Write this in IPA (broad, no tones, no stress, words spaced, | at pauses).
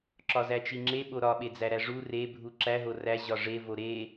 ǁɒzæt͡ʃiŋ͡ǁe ɓoɾɒ ɓed͡zæɾæʐu re bʱuǁæ ɦoræ ʑɒʐe voɾe